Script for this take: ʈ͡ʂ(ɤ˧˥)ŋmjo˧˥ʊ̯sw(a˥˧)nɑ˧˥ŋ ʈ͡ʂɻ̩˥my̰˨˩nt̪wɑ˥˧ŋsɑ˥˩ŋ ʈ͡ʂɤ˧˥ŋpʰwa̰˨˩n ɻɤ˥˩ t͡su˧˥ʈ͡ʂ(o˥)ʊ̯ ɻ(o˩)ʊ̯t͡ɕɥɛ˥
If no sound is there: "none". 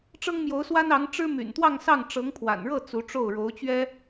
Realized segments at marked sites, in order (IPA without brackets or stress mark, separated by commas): ɤ˥, a˥, o˥˩, o˧˥